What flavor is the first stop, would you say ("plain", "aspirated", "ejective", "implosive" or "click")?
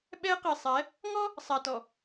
implosive